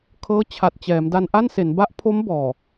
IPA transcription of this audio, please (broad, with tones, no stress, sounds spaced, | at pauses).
kʰ ɤː˦˥ t͡ɕʰ a˨˩ t̚ t͡ɕ ɛː˩˦ m d a˧ n ʔ a˥˩ n s e˩˦ n b a˦˥ ʔ pʰ o˦˥ m b ɔː˨˩